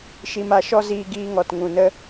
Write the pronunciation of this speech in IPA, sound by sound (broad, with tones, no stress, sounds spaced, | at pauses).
ʃ i˦ m a˦ ʃ ɔ˦ z iː˦ ɡ iː˦ ŋ ɔ˨ t ŋ ũ˨ n ə˧